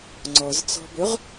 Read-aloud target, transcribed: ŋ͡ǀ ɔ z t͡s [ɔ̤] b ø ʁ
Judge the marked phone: correct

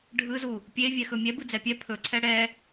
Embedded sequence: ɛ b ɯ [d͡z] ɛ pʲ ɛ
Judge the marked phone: correct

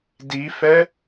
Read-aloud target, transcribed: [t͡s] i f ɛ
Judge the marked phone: incorrect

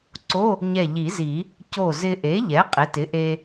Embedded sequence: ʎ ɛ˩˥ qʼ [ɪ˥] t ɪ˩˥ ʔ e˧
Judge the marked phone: incorrect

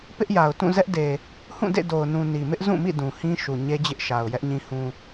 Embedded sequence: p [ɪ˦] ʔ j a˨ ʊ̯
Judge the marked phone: correct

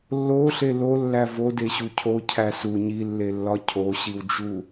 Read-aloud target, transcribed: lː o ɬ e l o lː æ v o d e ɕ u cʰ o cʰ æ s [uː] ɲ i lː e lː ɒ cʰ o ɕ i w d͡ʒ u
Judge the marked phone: incorrect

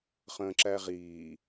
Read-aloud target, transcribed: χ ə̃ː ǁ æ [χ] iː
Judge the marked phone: incorrect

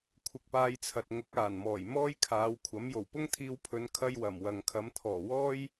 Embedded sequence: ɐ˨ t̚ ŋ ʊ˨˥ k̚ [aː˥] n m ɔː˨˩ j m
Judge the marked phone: incorrect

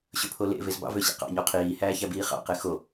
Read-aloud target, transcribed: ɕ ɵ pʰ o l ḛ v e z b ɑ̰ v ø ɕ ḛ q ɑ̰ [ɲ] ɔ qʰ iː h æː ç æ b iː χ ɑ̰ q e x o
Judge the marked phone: correct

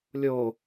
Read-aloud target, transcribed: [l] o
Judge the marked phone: incorrect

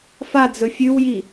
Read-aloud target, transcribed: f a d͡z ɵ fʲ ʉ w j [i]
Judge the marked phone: correct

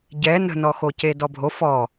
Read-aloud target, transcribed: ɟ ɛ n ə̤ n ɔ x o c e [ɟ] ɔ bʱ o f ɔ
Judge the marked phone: incorrect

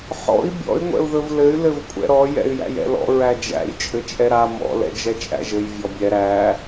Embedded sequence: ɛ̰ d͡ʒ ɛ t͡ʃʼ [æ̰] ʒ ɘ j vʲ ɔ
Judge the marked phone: correct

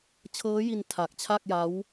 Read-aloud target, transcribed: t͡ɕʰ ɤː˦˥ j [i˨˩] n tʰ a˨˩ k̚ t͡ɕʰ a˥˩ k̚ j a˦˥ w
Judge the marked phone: incorrect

